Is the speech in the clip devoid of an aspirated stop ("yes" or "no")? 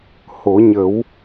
yes